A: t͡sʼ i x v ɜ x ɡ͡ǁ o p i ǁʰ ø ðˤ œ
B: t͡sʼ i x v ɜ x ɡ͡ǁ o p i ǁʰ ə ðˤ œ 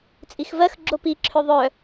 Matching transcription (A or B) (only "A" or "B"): A